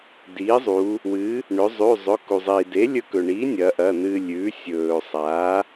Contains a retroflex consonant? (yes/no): yes